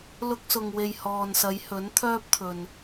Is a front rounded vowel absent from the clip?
no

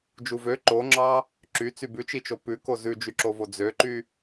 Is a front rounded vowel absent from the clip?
no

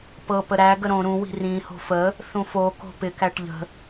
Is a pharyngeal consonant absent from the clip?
yes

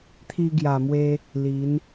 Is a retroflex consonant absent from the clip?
yes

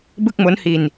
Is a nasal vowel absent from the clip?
yes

